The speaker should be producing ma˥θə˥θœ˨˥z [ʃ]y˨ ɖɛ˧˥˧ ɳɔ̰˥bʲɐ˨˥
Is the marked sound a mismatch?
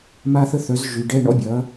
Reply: yes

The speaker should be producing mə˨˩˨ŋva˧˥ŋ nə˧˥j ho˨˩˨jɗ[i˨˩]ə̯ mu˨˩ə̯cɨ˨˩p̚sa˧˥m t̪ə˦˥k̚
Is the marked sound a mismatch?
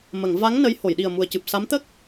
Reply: no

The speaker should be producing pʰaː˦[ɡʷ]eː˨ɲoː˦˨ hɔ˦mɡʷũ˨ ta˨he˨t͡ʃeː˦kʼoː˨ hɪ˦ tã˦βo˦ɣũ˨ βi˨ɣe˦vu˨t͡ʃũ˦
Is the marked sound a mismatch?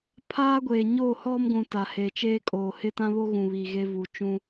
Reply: no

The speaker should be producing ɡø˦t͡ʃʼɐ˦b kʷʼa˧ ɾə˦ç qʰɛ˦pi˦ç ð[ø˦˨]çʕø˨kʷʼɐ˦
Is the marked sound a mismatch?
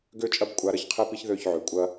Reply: no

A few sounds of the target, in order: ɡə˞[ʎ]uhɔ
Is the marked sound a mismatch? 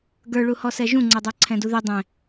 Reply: yes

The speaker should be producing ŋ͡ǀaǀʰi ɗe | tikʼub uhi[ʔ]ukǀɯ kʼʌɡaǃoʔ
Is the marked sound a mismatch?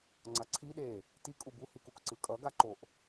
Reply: yes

